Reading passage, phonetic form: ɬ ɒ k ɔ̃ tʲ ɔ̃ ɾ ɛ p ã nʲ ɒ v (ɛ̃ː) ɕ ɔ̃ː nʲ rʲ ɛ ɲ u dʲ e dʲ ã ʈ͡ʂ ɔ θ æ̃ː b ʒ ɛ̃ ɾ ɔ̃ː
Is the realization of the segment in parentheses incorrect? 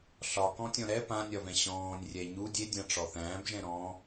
yes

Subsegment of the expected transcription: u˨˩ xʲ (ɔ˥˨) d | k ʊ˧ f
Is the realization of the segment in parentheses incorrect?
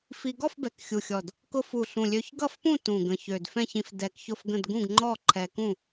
yes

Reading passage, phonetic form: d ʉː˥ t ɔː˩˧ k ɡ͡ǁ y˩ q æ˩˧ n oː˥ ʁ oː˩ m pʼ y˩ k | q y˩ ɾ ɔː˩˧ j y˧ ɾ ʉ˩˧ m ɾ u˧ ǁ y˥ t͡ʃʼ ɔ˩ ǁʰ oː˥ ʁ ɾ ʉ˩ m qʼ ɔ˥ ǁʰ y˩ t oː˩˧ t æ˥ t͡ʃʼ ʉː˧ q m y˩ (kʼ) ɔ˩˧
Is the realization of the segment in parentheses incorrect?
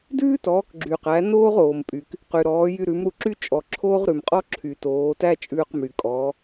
no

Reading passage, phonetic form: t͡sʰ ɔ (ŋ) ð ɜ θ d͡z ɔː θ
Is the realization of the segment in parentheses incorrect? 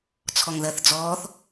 no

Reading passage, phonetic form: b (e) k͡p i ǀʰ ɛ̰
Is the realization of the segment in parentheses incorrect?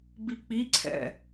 yes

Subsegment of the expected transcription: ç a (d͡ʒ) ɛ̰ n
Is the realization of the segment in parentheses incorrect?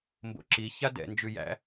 yes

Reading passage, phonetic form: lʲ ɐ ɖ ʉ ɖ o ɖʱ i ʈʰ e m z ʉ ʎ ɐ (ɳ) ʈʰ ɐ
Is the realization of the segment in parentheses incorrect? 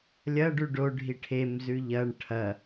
no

